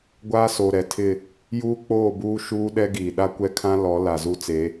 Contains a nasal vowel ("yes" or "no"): yes